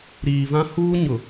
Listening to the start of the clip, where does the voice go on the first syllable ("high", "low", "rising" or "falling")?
low